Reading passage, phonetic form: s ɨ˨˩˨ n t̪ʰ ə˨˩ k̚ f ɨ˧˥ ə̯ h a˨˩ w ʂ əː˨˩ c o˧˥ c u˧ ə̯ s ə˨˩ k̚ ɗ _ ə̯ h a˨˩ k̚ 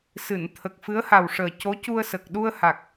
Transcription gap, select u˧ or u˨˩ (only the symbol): u˧